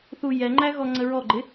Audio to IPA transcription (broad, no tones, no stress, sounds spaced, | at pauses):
θ u j ɛ ŋ͡ǃ æ ɣ ɔ ŋ͡ǀ ə ɹ ɔ ɡ͡ǃ ɪ